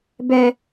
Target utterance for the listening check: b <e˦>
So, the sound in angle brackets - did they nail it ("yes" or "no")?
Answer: no